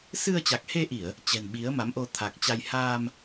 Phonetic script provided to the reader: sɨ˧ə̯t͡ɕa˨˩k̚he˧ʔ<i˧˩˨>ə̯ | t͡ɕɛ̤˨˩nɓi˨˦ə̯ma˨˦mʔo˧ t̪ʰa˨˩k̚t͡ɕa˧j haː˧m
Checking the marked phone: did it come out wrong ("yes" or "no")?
no